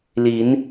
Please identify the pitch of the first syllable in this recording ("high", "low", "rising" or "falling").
rising